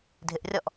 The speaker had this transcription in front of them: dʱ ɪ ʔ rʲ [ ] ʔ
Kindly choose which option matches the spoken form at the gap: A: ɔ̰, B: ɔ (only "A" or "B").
B